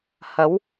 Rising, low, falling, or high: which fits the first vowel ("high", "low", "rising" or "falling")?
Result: rising